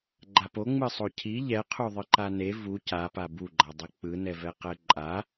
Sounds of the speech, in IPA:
ɡ͡ǃ a p o ŋ͡m ɯ sˤ o cʰ i ʎ ɛ qʰ u ðˤ ɯ ǃ a n e v u c a p a b u ɡ͡ǃ a dˤ ɛ k͡p ɯ n ɛ v ɛ q ɛ ǃʼ a

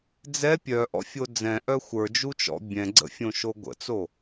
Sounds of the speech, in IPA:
d͡z ɛ pʲ œ ʔ ɔ̰ fʲ o d͡z ɛ̃ ʔ œ xʷ ə˞ d͡ʒ u t͡ʃ ɔ̰ bʲ ɛ̃ ɡ͡ǀ ə̰ fʲ õ ʃ o ɡʷ ə̰ t͡s o

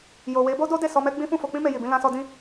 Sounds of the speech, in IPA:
j o˨ w e˨˦ b o˦ d o˦ d e˦˨ s ɔ˧ m ɛ˦ ɡ͡b ĩ˦ f ũ˦˨ f o˧ k͡p ĩ˦ m e˧ j i˨ b ĩ˧ l ã˧ s ɔ˧ d ĩ˧

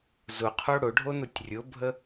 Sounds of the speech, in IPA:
z ʊ qʰ o ɽ ʊ ɖʱ o n ʊ tʲ rʲ ʊ bʱ ə

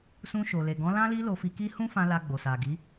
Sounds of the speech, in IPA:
s ũ˧ ʃ o˨ l e˨ ɡ ɔ̃˨˦ l ã˦ l i˦ l o˧ f i˧ k i˦ h ũ˦ f ã˧ l a˧ ɡ͡b o˨ s a˨ ɡ i˨˦

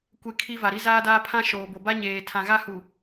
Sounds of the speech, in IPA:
kʷ e˦ kʰ i˦ v a˨ ɾ i˦ z aː˦ d aː˦ pʰ ã˦ ʃ oː˨ b o˨ b a˦ ɲ eː˨ tʰ ã˨ ɣ a˦ h u˨

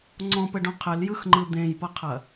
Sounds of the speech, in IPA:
ŋ͡ǀ ɔ̃ p ɘ ɖ õ qʰ ɘ l j ɯ x ŋ͡ǃ ɯ d̪ ẽ j p ɤ qʰ ɐ

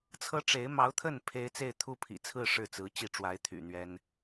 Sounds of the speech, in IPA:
t͡sʰ ɤ˥ ʈ͡ʂ e˧˥ ɪ̯ m ɑ˧˥ ʊ̯ t̪ʰ ə˥˩ n pʰ e˥ ɪ̯ t͡s e˥˧ ɪ̯ t̪ʰ u˥˩ pʰ ḭ˨˩ t͡sʰ ɹ̩˥˧ ʂ ɻ̩˥˩ t͡s ɹ̩˧˥ t͡ɕ i˥˩ ʈ͡ʂ w a˧˥ ɪ̯ t̪ʰ y̰˨˩ n̪ ɥ ɛ˥ n

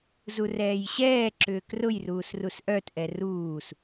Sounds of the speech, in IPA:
z u r ɛː j ɕ ɛː ǁ ʏː k r ʊ j r uː s r u s ʔ œ t ʔ ɛ r uː s

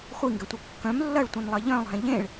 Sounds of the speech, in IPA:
χʷ i ŋ ɡ ɛ tʷ ɛ kː œ̃ m lː ɐ ɭ tʷ ɛ̃ n lˠ ɐ ʎ œ̃ lˠ ɦ ɛ̃ ʎ ẽ ɭ

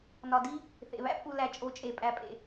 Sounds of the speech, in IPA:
n ɒ˨ d i˦ | θ ḛ˨ β æ̰˦ pʼ u˨ l æ˨ t͡ʃʼ o˨˦ t͡ʃʼ e˨ pʼ æ˨ pʼ ḛ˨

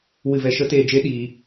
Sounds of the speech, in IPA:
w ɨ˧ v ɛ˧ ʃ ə˦ t eː˧ d͡ʒ e˦ ɗ iː˧

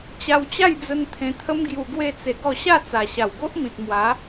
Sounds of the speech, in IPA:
t͡ɕ a˧ w t͡ɕ a˥˧ j d͡z ə˧ n t̪ʰ ẽ˧ t̪ʰ ə˦ m ɡ j u˧ ɡ w e˥˧ t͡s e˧ ɡ ɔ˥˧ ɕ a˥˧ t͡s a˨˩ ɕ a˨˩ w ɡ o˦ ʔ m ĩ˨ t̚ m w a˨˦

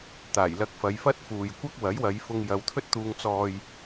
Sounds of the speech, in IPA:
t̪ aː˨˩ j l ɐ˧ k̚ f ɐ˨˧ j f ɐ˥ t̚ f uː˨ j kʷ ɐ˥ k̚ w ɐ˨˥ j w ɐ˨˧ j f ʊ˧ ŋ j ɐ˨˧ w t̪ʰ ɵ˥ t̚ t̪ uː˧ ŋ t͡s ɔː˧ j

